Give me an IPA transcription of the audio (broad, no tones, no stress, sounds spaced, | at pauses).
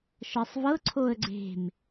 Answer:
ʃ ɤ sˤ v ɤ ǀʰ o ə̯ ɡ͡ǀ e̤ m